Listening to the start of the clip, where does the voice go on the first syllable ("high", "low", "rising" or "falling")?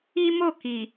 high